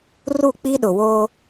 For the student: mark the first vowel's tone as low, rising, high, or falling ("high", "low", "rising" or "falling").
falling